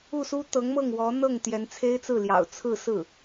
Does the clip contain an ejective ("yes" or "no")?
no